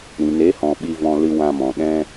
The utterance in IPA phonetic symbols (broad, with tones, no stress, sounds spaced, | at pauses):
ɾ ĩ˨ n e˨˦ h ɔ̃˨ ɓ i˧ v ɔ̃˧ l ɨ˧ w ã˧ m ɔ̃˨ ɗ ɛ̃˧